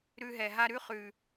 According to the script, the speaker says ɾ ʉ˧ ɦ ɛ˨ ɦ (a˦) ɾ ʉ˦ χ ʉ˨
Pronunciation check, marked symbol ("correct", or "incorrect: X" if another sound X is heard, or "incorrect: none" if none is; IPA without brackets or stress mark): correct